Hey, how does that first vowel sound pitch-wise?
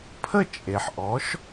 falling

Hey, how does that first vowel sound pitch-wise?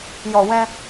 low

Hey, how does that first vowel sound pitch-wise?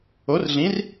rising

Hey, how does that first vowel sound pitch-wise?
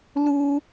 high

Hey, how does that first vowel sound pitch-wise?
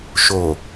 low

